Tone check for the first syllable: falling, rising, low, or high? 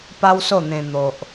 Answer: high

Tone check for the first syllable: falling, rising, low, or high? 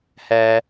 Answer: low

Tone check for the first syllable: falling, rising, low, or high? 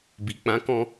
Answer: low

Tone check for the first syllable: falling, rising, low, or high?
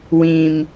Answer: low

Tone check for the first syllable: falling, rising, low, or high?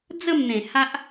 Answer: falling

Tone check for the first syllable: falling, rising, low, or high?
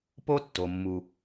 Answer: high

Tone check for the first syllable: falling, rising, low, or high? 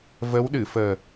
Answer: rising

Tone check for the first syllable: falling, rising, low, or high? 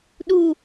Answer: falling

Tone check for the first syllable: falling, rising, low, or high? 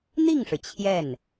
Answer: falling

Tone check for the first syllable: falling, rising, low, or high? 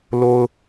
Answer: high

